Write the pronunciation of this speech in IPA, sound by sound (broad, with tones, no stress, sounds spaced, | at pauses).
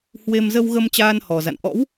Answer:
h w e˧ m z ə˧ w ɣ ə˧ m t͡ɕ aː˧ n h ɔ˨˩ z a̰˧˨ n ʔ ɔ̰˧˥ w